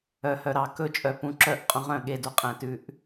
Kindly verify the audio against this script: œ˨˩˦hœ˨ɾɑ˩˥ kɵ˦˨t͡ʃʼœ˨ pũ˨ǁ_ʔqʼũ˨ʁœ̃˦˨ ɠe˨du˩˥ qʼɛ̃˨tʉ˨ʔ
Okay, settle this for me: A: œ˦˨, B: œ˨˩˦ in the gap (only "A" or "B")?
A